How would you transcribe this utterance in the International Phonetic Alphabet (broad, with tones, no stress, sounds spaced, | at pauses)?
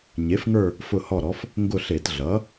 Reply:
ɲ e˩˥ f ŋ ə˞˦˨ | f ʊ˦˨ h ɔ˦˨ ɾ ɔ˩˥ f | ŋ ɡ ʊ˦˨ ɬ e˧˩˧ t ɮ ʌ˩˥